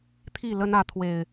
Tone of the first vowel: falling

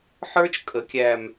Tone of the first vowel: high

